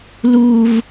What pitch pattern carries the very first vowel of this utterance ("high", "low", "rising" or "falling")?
high